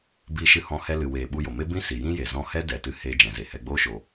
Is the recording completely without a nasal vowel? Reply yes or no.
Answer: no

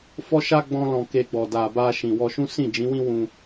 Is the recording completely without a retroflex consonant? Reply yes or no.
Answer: yes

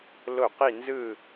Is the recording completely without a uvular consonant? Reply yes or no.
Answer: no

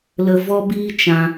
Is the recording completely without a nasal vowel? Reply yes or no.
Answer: no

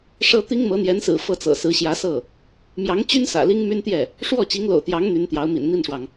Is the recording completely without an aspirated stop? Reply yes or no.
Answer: yes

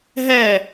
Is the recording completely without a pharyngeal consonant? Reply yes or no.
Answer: yes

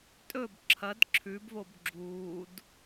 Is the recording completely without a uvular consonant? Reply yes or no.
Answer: yes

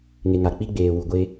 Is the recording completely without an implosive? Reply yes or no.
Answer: yes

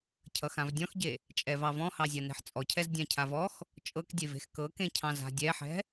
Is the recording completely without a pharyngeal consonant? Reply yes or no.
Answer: no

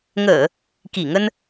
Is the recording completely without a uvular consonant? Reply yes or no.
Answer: yes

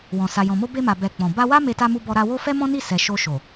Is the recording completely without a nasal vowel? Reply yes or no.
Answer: no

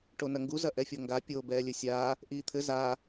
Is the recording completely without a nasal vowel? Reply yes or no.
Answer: yes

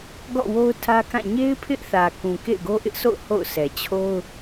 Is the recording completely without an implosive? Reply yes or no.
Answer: yes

